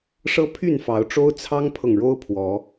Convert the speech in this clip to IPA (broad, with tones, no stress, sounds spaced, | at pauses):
ʂ ɤ˦ pʰ y˥˨ n f ɑ˨˦ ʊ̯ ʈ͡ʂ o˦ ʊ̯ t͡sʰ ɑ˦ ŋ pʰ ɤ˨ ŋ ɻ o˦ ʊ̯ pʰ w ɔ˨˦